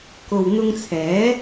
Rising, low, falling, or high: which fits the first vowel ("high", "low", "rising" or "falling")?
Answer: low